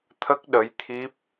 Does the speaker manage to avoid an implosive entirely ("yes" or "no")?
no